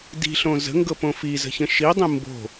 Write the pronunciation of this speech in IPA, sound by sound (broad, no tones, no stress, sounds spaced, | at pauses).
d i̤ ɬ õ z ə̤ ŋ ɡ ɤ p õ f i z ə̤ ç ə̃ ʃ i dˤ ĩ m b o̤